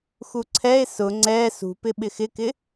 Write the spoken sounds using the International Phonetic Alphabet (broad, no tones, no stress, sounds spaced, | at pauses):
x u ǀʰ ɛ e̯ s ʊ ŋ͡ǀ ɛ s ṳ p ɪ ɓ ɪ x ɪ k ɪ